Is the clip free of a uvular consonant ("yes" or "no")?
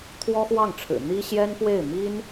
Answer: yes